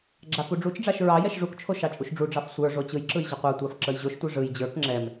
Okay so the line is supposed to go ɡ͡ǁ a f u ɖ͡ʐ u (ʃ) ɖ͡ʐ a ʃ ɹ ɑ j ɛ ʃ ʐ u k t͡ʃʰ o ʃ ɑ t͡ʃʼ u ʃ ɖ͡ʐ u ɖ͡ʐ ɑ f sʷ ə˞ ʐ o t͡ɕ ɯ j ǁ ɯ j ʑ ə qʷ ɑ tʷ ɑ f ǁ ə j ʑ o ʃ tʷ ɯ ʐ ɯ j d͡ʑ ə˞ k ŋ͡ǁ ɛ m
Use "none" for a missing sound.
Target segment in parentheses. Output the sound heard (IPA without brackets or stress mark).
t͡ʃ